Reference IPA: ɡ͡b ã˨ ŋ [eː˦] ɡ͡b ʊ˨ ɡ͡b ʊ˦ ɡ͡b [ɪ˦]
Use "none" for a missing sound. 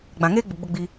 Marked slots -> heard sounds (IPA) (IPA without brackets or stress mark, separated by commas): eː˦, i˦